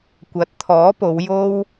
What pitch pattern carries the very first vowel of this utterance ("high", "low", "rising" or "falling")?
rising